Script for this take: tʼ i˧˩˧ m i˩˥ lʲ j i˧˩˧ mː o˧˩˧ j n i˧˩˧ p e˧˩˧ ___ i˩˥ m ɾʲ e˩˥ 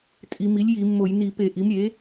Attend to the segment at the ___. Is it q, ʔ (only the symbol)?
ʔ